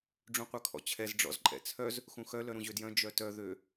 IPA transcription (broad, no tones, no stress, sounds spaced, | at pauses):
ɖ͡ʐ ũ qʷ œ kʰ ɔ̰ t͡ɕʰ ɛ z ɖ͡ʐ ɔ̰ z ǃʼ ɛ̰ t͡sʰ œ z | x ũ x œ l œ ɾ ũ ʑ ø d j œ̃ d͡ʒ œ t œ ð ø